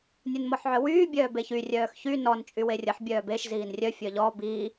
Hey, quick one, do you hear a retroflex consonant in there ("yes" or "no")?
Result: no